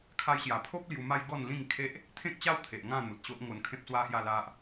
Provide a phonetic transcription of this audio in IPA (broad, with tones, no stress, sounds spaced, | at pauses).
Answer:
kʰ a˧ j ɕ j a˨˩ pʰ o˦ p̚ l j u˧ m a˦ j ɡ ɔ˥˧ n l ĩ˥˧ ŋ kʰ e˦ ʔ | t̪ʰ ẽ˦ k̚ t͡ɕ a˦ w t̪ʰ e˨ ʔ ŋ ã˥˧ n̪ u˨ t̚ ɕ o˦ ʔ ŋ o˧ n kʰ ẽ˦ p̚ s w a˦ h j a˥˧ l a˦ ʔ